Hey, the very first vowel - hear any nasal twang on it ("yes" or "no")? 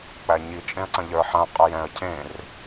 no